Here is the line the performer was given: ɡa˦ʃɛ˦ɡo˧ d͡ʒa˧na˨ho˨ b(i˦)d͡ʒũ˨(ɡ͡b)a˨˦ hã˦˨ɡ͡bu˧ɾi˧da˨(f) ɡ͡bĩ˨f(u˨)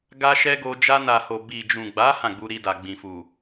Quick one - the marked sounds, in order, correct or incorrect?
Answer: incorrect: i˨, correct, incorrect: none, correct

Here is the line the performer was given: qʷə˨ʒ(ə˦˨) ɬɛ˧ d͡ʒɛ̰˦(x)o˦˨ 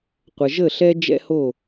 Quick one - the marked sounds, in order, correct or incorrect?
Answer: correct, incorrect: h

